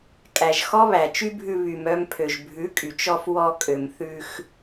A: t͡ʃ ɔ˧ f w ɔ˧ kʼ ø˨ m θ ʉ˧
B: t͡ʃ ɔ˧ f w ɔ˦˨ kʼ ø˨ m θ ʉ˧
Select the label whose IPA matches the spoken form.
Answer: A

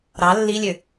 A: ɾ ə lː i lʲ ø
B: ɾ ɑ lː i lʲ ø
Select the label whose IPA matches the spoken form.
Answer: B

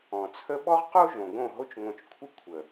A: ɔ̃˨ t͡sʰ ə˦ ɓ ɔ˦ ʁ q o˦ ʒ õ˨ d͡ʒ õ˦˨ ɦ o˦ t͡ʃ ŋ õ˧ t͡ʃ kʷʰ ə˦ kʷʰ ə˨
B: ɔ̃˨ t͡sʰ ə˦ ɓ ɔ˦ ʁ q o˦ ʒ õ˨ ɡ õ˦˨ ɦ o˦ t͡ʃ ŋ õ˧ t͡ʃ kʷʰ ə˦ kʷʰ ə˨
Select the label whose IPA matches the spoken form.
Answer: B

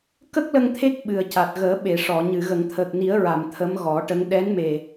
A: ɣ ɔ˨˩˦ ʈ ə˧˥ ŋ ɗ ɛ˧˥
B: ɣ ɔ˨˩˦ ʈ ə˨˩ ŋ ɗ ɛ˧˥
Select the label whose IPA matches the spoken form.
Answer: A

